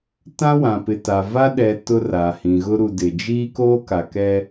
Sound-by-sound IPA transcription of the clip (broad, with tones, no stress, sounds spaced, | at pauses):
t ã˦ w ã˨ p ɪ˨ t a˨ v a˦ ɗ ɛ˨ t ʊ˦ r a˨ h ĩ˨ ɣ ʊ˦ ɾ u˨ d ɪ˨ d͡ʒ iː˦ k oː˦ k a˨ k ɛ˦